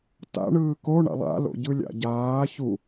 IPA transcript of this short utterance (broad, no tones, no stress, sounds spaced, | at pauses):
t a̰ ɳ ɯː k o ɳ a̰ lˠ a̰ l o̰ ɟ ɯ lʲ a̰ ɟ aː ç u